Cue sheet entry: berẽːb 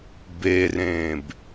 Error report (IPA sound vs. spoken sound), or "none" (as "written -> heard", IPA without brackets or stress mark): none